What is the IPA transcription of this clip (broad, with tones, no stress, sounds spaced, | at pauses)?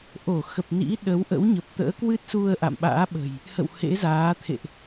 ʔ o˧˩ x ə˨˩ p̚ n ḭ˧˥ ɗ ə˨˦ w ʔ ə̰˧˥ w ɲ ə˨˩ p̚ t̪ ə̰ː˧˥ k w ɨ˦˥ t̚ s u˧ ə̯ ʔ a̰˧˨ m ɓ a̰ː˧˥ ɓ ə̤˨˩ j | h ə̰˧˨ w h ḛ˧˥ z aː˨˦ t̪ʰ ḛ˧˨ ʔ